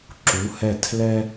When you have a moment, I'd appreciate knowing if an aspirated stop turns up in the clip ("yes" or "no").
yes